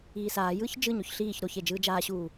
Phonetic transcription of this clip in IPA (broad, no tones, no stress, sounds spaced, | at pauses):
iː s aː j ɯː ç d͡ʒ ɯ ɲ o ç ɬ iː ç ɾ o ç e d͡ʒ ɯː d͡ʒ aː ɕ uː